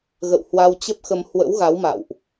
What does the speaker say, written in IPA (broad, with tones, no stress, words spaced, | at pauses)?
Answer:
ɣə̰˧˨whwa˧wt͡ɕə˦˥p̚xə˧m hwə̰˧˥wɣa˨˦wma̰˧˨wʔ